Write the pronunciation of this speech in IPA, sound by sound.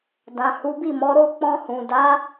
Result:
d ã˨ h u˨˦ b i˦˨ m ɔ˨˦ ɾ o˦ k͡p ɔ̃˧ h ũ˨ d a˨˦

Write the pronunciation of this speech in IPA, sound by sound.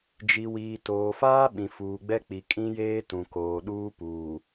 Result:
d͡ʒ i˨ w iː˨ t oː˨ f aː˦ ɓ ĩ˨ f uː˨ ɡ͡b ɛ˦ k͡p i˨ kʼ ĩ˦ j eː˦ t ũ˨ k oː˨ ɗ uː˦ p uː˨

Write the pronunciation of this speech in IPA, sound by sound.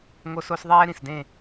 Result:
ŋ o˦ s o˦ s ðˤ ɛː˦ ɾ ĩ˨ s d ẽ˦˨

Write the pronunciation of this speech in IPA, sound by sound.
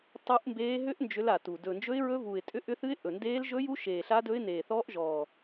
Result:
tˤ u˦˥ ʔ m b eː˦˥ ɦ ʏ˦˥ ʔ n d͡ʒ ʏ˦˥ l a˨˩ t u˨˩ d ɵ˨˩ n d͡ʒ ɵ˦˥ ɪ̯ ɹ ɵ˦˥ v u˨˩ ɪ̯ tʼ ʏ˦˥ ʔ ʏ˦˥ θ ɨ˦˥ ɪ̯ ʔ ɵ˨˩ n d eː˦˥ l ʒ ɵ˦˥ j u˦˥ ʃ eː˨˩ ɬ a˦˥ d ɵ˦˥ ɪ̯ n eː˨˩ θ ɔː˦˥ ʔ ʒ ɔː˨˩

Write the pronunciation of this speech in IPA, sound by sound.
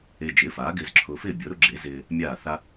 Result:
e˧ d͡ʒ ɪː˩˥ f aː˩˥ ɡ ɪː˧ z ǁʰ ʊː˧ f ɪː˥˩ bʲ ʊː˩˥ ɾ ʊ˧˥ ɡ͡ǁ e˩˥ z ɪː˧ | mʲ aː˥˩ θ a˥

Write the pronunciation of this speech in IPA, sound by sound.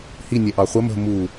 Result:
h i nʲ ɛ ʔ ɑ χʷ ə m ə̤ m u

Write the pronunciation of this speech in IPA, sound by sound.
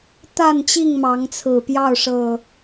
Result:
t̪ a˥˨ n t͡ɕ i˥˨ ŋ m ɑ˨˦ ŋ t͡sʰ ɹ̩˨˩ p j ɑ˥˨ ʊ̯ ʂ ɤ˨˩

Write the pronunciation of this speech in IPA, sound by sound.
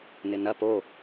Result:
n ɪ n ɐ p o

